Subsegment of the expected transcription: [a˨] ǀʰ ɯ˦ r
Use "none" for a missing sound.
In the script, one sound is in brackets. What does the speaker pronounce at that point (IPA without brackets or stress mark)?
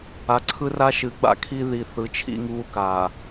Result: a˨